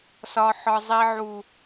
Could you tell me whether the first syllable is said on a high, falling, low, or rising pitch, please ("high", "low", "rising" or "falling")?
high